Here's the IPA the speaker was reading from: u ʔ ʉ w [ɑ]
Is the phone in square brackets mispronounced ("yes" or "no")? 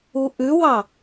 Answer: no